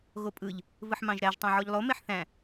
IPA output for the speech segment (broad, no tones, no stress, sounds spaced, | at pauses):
ɣ o pʼ ɯ ʎ | v ɯ ħ m ɑ̃ ʒ ɾ æ ʒ tˤ ɑ̃ ʕ o ʎ lˠ o m e ħ θ æ̃